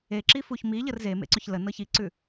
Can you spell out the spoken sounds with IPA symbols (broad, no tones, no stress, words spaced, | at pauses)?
e ǁifuçmiʎər zemḛǀɵç lənɤ çiǀʉ